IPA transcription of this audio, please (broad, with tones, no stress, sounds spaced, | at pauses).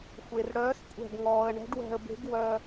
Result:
xʷ e˩ r ɽ œː˨˥ s kʷʼ ɛ̤˧˩ ɡ ŋ ɔː˩ ə̯ ɳ ɛ̤˨˥ ɖ w ɛ̤˧˩ ə̯ b e̤˨˥ ɡ w œ˩